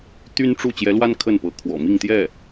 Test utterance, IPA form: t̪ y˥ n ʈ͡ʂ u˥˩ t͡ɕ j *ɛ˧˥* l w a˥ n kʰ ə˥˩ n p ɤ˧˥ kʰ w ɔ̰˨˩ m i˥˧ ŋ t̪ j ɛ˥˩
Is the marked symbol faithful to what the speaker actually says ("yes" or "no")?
yes